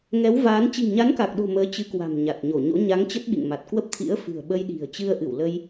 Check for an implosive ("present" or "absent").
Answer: present